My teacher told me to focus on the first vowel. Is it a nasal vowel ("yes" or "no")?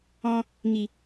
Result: yes